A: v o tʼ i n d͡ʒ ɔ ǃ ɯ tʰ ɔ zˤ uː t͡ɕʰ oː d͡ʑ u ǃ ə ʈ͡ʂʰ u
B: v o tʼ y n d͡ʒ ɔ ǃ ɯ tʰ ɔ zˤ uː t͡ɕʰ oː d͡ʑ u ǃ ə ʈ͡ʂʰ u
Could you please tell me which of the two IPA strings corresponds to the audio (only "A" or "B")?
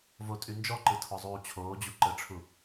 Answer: B